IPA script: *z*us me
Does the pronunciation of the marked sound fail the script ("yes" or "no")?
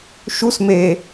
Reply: yes